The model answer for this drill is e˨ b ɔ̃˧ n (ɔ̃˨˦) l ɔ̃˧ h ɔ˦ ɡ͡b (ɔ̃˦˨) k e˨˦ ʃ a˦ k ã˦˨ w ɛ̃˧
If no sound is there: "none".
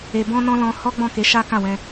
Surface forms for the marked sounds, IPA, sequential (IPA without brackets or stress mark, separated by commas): ɔ̃˧, ɔ̃˦˨